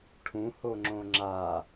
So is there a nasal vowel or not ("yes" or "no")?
yes